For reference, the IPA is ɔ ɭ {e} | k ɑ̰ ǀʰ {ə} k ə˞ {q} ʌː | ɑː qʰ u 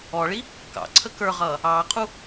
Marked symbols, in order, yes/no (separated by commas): no, yes, no